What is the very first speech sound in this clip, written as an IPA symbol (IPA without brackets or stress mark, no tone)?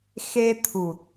x